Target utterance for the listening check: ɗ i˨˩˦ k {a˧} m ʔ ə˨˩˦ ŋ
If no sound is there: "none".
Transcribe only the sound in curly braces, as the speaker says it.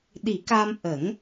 a˧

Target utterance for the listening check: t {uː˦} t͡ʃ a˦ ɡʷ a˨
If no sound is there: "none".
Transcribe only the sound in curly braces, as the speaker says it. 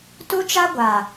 u˦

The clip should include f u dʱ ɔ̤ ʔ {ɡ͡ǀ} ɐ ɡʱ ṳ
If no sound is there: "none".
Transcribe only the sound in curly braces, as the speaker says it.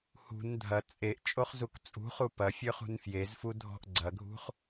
ɡ͡ǀ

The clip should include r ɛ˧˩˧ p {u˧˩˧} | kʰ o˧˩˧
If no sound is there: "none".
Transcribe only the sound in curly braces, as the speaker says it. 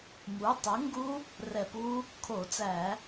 u˦˥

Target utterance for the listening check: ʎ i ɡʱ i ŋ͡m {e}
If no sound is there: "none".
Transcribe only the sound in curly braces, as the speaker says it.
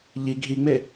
e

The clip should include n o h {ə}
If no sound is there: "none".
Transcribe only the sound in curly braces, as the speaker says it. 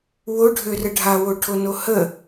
ə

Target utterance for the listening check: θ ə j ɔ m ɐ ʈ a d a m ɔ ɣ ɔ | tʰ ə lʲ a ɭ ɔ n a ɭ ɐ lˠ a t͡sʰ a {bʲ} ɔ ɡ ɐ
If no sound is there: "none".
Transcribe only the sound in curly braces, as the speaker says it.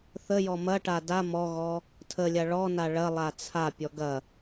pʲ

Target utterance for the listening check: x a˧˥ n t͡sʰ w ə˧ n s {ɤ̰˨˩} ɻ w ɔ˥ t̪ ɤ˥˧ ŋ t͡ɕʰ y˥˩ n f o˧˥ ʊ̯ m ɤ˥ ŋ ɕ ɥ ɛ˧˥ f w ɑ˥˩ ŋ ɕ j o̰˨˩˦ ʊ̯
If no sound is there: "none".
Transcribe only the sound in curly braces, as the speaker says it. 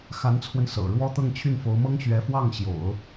ɤ̰˨˩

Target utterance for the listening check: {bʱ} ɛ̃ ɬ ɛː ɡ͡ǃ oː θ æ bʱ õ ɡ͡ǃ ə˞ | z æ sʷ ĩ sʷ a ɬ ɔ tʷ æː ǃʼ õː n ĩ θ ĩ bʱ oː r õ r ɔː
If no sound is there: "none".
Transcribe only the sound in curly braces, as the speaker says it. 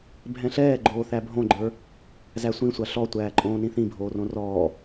bʱ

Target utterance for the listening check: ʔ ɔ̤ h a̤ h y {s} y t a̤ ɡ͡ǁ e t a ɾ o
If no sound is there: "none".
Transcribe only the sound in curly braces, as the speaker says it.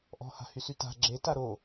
s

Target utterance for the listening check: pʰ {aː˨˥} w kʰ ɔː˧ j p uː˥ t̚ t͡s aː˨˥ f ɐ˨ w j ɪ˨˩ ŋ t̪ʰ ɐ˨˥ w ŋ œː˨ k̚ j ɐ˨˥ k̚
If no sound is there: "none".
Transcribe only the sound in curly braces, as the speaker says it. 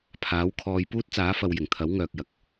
aː˨˥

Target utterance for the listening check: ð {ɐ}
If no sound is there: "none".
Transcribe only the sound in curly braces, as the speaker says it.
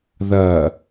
ɐ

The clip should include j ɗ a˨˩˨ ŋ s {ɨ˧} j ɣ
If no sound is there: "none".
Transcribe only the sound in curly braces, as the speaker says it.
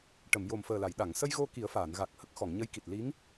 ə˧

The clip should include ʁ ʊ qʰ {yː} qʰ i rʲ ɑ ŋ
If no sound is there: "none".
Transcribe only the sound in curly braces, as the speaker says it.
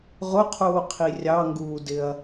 uː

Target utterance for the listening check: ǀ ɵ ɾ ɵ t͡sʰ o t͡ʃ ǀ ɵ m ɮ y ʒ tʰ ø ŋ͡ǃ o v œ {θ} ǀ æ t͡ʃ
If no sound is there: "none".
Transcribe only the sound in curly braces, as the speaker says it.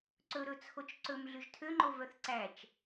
θ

